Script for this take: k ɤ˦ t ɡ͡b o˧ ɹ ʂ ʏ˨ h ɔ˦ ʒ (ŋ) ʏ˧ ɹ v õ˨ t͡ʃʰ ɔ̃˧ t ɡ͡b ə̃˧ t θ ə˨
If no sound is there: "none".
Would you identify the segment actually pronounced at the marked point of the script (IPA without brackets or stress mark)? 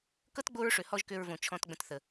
k